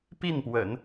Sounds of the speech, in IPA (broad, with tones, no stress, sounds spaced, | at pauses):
p i˥˩ n p w ə̰˨˩˦ n